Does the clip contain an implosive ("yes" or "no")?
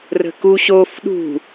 yes